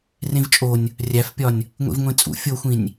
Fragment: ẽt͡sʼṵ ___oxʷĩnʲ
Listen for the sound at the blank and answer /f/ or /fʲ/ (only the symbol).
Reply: fʲ